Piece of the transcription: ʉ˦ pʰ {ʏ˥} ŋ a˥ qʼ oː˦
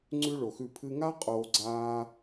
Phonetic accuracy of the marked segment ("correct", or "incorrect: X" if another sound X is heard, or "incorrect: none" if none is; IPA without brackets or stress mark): incorrect: ɨ˥